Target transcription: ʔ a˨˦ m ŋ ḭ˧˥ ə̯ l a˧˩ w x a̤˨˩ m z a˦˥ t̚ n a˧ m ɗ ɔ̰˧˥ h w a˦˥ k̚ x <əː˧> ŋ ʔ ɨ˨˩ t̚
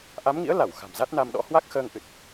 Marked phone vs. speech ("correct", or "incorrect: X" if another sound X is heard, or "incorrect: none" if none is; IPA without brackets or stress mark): correct